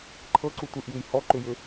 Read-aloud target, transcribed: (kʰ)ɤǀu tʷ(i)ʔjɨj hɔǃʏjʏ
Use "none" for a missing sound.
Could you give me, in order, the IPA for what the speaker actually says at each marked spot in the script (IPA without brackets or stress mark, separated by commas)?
ǃʰ, ɨ